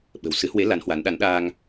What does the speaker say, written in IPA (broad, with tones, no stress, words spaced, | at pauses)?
ɓə̤˨˩wsɨ˨˦hwe˨˦ la˨˦nhwa˨˦n ɗa˨˦nɗaː˧ŋ